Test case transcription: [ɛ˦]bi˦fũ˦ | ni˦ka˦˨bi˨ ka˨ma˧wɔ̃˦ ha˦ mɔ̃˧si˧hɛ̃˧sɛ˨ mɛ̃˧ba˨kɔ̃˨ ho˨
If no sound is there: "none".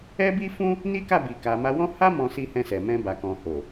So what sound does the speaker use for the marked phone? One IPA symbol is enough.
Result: ɛ˦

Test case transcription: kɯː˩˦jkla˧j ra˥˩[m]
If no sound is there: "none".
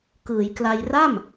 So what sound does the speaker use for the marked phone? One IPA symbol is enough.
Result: m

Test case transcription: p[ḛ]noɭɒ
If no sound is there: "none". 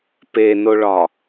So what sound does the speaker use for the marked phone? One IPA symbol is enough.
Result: e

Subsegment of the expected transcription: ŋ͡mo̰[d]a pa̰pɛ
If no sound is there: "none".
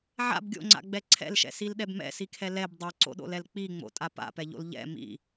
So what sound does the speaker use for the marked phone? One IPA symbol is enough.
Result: tʼ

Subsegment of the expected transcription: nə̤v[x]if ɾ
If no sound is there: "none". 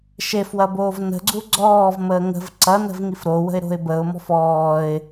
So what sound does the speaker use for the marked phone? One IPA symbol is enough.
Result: ŋ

